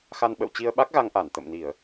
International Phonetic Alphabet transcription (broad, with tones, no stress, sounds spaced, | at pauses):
x a˧ n ɓ ə̰˧˨ w t͡ɕ i˧ ə̯ ɓ a˦˥ k̚ ɣ a˧ ŋ ʔ aː˧˩ n t̪ ə̰˧˨ m n i˧˩˨ ə̯